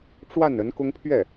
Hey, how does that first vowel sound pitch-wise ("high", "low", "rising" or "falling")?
falling